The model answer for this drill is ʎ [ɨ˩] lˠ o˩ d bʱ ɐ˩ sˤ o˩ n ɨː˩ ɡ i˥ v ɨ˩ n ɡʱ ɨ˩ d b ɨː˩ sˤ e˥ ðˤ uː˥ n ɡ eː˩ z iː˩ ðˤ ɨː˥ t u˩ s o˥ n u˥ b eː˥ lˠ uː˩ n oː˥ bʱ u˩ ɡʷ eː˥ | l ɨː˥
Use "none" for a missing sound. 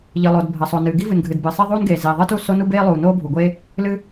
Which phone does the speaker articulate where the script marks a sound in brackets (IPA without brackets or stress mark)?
ɨ˩